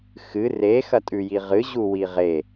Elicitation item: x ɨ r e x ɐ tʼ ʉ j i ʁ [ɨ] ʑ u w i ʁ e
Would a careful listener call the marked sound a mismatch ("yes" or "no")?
no